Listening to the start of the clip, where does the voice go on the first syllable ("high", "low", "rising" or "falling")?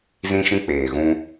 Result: high